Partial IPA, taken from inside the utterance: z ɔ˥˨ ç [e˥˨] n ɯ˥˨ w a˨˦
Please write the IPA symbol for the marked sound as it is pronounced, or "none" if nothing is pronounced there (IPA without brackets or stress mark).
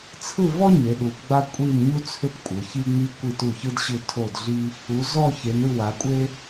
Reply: e˨˦